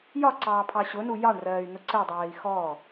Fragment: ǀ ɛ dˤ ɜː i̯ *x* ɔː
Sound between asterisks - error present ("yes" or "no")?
no